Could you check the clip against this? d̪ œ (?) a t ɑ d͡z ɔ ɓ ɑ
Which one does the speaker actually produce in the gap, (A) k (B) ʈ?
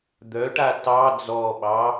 B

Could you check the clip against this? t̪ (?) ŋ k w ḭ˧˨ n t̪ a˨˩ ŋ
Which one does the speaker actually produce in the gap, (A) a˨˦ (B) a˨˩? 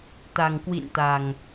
B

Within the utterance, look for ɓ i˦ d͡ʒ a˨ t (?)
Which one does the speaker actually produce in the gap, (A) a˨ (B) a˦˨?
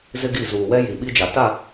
B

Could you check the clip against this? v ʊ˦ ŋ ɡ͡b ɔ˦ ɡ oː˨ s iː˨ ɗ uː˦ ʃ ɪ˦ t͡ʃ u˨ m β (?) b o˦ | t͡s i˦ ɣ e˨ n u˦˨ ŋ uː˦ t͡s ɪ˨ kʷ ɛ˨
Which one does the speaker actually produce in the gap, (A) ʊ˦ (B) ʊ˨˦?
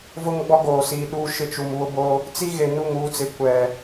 A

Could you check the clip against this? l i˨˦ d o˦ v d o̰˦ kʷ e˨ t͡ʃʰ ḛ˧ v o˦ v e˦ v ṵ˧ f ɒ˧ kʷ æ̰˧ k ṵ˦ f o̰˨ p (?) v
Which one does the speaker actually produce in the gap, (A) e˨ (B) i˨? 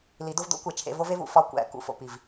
B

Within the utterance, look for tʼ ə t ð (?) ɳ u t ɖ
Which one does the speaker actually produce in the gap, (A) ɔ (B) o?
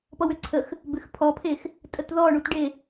A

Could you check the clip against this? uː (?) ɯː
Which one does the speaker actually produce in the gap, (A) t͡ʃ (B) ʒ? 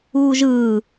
B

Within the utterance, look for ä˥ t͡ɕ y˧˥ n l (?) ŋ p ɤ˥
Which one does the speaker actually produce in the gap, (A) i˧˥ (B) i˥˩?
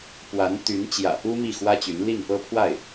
B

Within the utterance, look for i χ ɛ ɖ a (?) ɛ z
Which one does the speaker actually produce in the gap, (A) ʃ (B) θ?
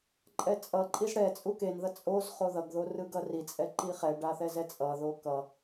B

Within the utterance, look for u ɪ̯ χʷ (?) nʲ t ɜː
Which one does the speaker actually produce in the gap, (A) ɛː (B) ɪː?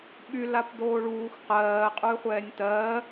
A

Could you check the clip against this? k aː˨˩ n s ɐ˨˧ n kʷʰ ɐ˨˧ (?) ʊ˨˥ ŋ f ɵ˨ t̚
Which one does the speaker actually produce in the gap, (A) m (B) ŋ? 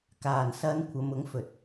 A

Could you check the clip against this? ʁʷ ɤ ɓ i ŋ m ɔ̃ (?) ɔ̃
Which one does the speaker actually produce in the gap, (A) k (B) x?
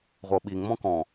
A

